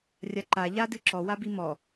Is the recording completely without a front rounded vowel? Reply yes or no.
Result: yes